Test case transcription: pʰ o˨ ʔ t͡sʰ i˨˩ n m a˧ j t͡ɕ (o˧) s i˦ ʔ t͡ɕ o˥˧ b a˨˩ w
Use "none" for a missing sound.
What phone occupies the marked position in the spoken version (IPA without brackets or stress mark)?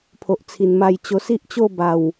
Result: o˧